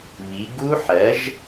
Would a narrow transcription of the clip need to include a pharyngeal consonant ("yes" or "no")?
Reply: yes